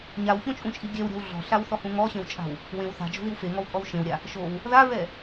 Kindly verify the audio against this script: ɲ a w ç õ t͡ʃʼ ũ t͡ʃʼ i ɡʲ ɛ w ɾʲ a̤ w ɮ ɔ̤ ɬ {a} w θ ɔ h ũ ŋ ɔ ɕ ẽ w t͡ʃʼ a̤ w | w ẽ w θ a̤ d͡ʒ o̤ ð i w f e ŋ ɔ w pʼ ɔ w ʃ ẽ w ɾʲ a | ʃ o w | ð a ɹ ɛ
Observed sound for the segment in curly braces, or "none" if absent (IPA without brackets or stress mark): a